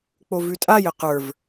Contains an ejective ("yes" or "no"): yes